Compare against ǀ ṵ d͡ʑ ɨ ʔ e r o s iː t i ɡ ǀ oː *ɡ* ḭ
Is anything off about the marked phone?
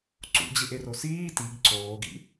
no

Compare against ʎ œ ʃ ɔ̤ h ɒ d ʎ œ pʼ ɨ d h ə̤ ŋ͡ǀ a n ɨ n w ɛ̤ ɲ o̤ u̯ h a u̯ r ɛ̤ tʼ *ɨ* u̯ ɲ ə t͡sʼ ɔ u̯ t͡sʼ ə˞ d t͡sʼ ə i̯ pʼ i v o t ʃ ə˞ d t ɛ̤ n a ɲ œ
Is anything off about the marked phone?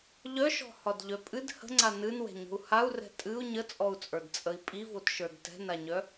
no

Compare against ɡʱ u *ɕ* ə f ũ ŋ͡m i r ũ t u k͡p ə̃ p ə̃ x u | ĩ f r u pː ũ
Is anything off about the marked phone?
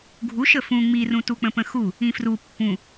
yes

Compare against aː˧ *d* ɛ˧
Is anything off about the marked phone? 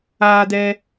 no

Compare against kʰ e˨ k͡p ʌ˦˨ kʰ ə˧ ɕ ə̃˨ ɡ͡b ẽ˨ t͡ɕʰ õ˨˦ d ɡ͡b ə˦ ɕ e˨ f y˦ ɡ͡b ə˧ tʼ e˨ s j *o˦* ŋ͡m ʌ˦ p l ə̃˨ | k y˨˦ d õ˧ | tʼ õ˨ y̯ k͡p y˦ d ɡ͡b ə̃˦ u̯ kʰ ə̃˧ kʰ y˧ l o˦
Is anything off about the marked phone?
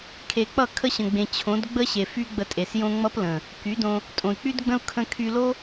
yes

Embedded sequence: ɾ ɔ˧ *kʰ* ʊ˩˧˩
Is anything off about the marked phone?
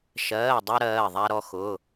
yes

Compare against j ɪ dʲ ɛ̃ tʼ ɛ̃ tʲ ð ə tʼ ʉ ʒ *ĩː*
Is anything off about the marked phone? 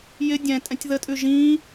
no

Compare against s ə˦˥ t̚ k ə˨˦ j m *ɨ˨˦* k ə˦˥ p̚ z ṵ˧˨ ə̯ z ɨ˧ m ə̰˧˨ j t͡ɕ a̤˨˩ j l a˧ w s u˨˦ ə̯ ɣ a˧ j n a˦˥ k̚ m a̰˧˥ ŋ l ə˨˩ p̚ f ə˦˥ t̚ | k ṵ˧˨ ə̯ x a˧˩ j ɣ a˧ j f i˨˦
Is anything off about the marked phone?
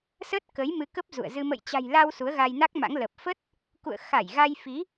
no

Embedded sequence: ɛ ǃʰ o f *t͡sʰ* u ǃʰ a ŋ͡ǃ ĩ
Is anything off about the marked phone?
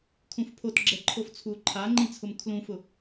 no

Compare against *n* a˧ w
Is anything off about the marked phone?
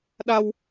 yes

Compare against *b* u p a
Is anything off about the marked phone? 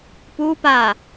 yes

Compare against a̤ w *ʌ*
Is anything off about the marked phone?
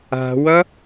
no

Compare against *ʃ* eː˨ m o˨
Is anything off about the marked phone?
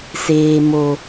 yes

